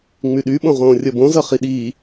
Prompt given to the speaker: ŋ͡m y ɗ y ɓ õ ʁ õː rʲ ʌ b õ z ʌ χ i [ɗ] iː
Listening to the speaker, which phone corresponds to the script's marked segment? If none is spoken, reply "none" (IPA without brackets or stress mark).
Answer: ɗ